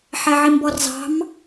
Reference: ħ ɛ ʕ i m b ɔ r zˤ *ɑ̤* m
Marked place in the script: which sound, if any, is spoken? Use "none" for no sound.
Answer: ɑ̤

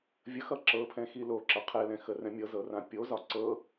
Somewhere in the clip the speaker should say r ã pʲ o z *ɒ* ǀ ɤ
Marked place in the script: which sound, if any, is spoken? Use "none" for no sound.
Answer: ɒ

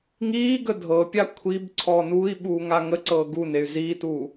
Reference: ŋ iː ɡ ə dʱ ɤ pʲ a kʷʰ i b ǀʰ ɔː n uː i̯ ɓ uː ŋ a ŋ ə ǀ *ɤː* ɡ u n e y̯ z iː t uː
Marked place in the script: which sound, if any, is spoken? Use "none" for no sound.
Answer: ɤː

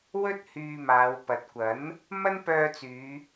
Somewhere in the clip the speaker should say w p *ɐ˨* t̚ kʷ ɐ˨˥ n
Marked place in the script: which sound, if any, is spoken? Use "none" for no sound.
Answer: ɐ˨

